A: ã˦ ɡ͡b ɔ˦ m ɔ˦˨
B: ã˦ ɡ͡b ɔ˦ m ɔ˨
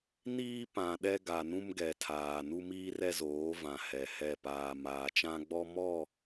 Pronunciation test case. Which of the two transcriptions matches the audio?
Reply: A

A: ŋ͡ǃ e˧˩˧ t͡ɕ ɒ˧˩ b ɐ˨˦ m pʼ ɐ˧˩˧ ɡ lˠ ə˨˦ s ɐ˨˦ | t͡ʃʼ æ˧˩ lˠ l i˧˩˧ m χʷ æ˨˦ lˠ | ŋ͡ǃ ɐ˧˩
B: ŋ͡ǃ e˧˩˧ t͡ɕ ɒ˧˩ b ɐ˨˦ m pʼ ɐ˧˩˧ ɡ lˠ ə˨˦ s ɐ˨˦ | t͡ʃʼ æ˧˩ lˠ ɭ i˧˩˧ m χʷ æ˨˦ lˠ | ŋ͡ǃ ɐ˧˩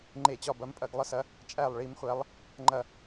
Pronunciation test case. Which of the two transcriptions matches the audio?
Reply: B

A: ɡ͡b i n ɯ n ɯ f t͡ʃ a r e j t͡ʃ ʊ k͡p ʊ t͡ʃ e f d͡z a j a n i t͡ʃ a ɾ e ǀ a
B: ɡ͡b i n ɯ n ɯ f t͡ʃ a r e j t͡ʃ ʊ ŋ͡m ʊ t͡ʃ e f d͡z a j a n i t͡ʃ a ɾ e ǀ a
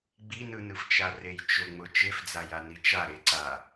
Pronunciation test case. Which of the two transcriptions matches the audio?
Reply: B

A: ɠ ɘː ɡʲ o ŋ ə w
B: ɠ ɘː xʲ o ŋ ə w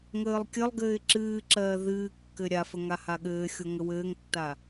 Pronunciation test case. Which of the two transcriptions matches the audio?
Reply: B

